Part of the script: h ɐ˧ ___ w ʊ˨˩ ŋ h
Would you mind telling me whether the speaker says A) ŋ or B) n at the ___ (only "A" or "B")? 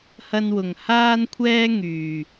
B